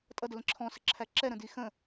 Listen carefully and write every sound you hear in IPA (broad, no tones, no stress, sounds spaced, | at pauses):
tʼ ʌ d ə l ə̃ ǁʰ ɔ̃ s ə ǁʰ æ ǁ ɛ ɾ ə̃ d i x ə̃